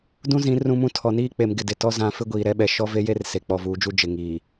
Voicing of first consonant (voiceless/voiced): voiced